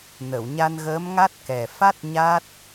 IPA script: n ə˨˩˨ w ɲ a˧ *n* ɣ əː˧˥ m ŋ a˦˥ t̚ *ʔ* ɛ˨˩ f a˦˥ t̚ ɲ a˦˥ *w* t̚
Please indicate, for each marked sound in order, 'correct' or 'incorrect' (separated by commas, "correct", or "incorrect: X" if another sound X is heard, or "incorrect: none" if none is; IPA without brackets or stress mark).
correct, incorrect: k, incorrect: none